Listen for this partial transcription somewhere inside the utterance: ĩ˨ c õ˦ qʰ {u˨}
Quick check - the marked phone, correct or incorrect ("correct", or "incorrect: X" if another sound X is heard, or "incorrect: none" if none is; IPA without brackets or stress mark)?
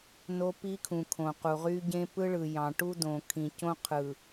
incorrect: ɯ˨